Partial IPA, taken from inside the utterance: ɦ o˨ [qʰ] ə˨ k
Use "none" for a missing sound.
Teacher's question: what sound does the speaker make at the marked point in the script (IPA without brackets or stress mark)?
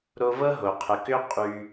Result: qʰ